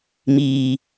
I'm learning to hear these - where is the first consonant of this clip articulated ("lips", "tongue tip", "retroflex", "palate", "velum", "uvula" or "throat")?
lips